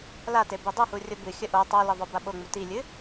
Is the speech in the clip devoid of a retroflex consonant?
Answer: yes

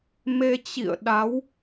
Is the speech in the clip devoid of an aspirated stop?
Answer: yes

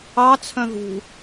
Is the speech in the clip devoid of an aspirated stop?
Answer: no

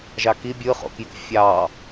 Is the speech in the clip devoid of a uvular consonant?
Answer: no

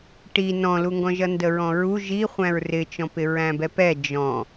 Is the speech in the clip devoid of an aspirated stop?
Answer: yes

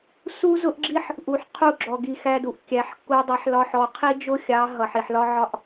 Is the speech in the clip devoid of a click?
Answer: no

